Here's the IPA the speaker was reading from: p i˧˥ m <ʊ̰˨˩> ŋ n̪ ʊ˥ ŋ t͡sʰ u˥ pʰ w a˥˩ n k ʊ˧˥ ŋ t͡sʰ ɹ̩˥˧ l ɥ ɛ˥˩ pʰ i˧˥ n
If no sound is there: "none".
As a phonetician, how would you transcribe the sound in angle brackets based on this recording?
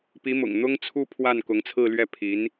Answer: ʊ̰˨˩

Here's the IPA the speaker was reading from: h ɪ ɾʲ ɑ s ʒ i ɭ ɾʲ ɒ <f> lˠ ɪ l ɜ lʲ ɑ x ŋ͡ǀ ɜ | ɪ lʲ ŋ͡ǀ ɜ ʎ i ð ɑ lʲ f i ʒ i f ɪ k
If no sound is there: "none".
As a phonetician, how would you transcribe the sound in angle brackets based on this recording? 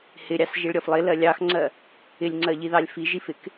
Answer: f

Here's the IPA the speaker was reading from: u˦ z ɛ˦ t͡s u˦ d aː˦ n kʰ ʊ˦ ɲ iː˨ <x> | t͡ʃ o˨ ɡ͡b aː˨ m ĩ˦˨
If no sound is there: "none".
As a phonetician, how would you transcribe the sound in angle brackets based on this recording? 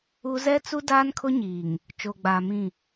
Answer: ŋ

